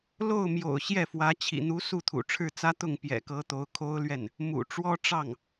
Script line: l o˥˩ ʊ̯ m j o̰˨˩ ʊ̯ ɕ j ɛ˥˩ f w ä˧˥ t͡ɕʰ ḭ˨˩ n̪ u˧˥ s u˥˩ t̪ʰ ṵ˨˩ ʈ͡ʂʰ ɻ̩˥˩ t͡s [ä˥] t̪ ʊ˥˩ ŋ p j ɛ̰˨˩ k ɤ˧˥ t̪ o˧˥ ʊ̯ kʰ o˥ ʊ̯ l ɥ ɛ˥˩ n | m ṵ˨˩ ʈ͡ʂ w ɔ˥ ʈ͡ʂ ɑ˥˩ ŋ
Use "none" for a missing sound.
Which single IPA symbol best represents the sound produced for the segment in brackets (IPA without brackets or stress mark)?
ä˥